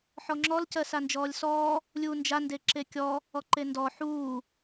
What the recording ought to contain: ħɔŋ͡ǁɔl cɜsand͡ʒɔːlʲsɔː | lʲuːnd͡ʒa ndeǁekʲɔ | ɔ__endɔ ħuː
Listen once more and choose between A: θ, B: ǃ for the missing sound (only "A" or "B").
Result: B